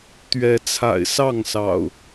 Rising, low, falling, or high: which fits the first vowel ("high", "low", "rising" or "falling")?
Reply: rising